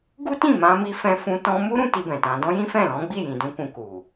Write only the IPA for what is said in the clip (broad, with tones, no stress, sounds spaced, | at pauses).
ɡ u˦ t ĩ˦˨ m ã˧ m i˧ f ɛ̃˧ f ũ˧ t ɔ̃˧ m u˦ ɾ ũ˦ t i˧ b ɛ̃˨ t ã˧ d ɔ̃˦ j ĩ˦ f ɛ̃˦˨ l ɔ̃˨˦ ɡ͡b i˦˨ j ĩ˨ d ũ˧ k ũ˧ k u˨